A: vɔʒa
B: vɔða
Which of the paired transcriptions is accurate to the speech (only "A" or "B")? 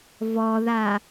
B